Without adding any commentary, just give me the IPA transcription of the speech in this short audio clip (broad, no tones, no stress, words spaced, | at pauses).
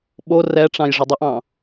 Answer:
ɓo rɛʈ͡ʂɑ̃j ʐədˤəʔɑ̃